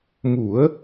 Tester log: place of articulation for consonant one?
labial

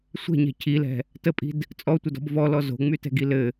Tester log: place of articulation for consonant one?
alveolar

